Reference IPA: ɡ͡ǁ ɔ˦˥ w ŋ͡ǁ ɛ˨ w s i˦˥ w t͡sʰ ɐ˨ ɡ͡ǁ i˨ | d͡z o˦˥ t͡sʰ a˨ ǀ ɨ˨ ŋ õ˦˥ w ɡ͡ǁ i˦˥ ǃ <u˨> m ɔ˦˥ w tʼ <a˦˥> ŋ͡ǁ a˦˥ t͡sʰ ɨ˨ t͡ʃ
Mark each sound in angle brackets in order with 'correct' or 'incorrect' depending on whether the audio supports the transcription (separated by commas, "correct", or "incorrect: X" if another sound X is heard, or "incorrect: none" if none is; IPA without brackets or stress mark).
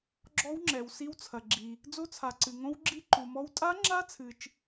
correct, correct